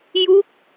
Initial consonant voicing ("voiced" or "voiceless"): voiced